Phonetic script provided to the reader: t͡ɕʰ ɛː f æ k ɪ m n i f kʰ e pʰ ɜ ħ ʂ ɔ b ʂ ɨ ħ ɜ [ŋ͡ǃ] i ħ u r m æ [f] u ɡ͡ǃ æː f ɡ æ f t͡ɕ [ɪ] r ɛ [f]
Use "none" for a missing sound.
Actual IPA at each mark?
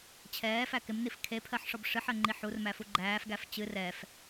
ŋ͡ǃ, f, ɨ, f

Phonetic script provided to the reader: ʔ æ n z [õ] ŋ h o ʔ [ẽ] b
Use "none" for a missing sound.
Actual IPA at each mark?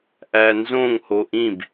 õ, ĩ

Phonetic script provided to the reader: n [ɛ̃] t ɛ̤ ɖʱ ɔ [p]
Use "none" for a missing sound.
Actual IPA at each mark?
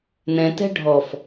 ɛ̃, f

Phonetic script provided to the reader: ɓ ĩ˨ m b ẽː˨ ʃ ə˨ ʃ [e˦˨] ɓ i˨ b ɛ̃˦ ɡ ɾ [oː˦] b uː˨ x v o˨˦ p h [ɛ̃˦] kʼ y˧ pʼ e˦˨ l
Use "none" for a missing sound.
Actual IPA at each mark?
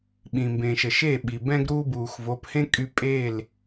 e˦˨, uː˦, ẽ˦

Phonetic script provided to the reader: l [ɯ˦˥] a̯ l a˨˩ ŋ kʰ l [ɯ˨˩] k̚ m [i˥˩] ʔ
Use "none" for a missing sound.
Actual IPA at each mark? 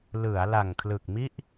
ɯ˩˦, ɯ˨˩, i˥˩

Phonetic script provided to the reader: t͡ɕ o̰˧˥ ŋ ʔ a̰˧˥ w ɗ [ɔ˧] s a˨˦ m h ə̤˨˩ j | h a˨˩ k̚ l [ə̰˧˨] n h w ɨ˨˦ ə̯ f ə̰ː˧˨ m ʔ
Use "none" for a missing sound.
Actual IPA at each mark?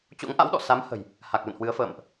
ɔ̰˧˨, ə̰˧˨

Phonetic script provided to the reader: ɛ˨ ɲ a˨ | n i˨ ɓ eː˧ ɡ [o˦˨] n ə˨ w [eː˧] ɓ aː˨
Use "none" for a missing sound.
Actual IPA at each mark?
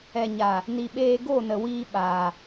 o˦˨, iː˧

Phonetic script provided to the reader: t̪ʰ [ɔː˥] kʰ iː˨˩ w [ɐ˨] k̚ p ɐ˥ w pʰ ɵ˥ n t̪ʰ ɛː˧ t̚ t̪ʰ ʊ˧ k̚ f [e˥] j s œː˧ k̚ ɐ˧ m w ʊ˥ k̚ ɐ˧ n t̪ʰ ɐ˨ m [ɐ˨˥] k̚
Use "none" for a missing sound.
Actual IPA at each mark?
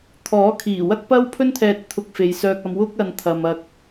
ɔː˨˥, ɐ˥, e˨˧, ɐ˧

